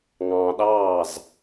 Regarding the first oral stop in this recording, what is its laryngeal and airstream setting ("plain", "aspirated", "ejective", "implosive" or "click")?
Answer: implosive